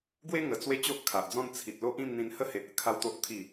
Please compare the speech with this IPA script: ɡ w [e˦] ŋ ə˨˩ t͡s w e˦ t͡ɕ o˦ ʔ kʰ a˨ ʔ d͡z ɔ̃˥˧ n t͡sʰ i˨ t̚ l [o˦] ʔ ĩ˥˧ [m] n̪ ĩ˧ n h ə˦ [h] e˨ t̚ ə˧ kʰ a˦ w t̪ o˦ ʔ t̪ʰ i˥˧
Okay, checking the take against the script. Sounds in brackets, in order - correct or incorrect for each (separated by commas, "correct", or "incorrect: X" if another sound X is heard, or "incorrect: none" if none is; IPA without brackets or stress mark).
correct, correct, correct, correct